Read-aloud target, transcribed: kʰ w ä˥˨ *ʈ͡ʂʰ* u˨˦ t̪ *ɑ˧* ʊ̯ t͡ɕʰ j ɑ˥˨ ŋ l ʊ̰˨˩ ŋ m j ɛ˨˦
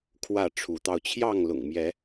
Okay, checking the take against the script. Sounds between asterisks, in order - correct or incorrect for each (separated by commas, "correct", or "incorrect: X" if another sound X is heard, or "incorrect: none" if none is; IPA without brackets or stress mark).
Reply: correct, correct